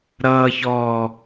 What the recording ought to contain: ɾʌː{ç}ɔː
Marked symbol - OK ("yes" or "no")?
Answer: yes